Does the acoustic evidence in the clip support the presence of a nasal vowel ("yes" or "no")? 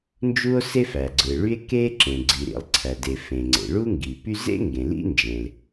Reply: yes